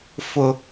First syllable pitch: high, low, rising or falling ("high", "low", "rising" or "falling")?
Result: low